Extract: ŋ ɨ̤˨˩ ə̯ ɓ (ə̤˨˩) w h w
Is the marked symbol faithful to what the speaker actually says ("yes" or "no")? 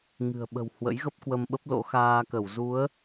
yes